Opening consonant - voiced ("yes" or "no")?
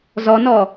yes